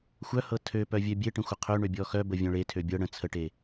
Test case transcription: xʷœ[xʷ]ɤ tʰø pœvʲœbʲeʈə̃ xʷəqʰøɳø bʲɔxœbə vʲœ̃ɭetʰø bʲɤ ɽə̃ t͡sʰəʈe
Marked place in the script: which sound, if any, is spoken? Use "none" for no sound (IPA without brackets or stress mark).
h